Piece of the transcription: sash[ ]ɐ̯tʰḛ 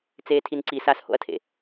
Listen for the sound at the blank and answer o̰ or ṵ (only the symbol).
o̰